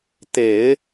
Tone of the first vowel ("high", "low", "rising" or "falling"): low